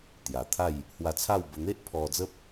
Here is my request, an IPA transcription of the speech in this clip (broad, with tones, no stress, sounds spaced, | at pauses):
t̪ j a˨˩ t̪ʰ a˥˧ j | h w a˧ t͡sʰ a˥˧ w b ə˧ n̪ e˦ ʔ pʰ ɔ˧ d͡z ə˦ p̚